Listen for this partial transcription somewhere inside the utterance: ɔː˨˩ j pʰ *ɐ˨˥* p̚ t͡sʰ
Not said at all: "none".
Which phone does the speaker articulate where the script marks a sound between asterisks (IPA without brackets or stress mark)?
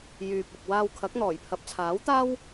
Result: ɐ˨˥